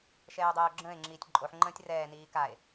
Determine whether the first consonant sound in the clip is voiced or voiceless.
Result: voiceless